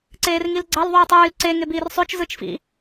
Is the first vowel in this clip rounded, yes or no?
no